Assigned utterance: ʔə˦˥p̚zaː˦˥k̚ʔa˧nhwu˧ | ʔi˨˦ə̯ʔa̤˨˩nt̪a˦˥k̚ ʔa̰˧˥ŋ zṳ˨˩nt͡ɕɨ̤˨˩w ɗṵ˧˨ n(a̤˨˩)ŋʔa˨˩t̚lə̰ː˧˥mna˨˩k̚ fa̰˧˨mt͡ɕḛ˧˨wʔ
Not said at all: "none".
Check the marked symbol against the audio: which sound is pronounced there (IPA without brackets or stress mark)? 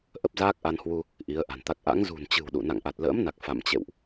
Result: a̰˧˨